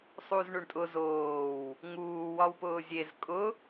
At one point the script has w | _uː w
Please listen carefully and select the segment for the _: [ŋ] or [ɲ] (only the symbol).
ŋ